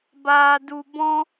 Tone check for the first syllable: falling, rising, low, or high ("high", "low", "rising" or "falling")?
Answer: low